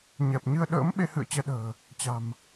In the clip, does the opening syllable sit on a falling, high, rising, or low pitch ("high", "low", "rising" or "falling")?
low